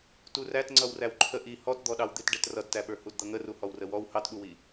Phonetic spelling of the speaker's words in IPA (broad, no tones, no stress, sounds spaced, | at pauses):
t u r æ t ŋ͡ǀ ʌ w r æ w ǃʰ ə ʔ i h ɔ t d̪ ɔ ɗ ɑ w d̪ ɪ t ɖ ɛ t r ʌ d t æ ɓ ə˞ h u d d̪ ʌ ŋ ə r u h ɔ w r ə w ɔ w h ɑ t ɓ u w i